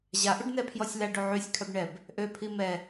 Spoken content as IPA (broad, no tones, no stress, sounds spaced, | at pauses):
ʑ a ʔ u ɖ n ɛ pʰ j ɔ sʲ l a ɖ o ʕ y sʲ kʰ œ b ɳ ɛ b | ʔ ø pʰ i m ɛ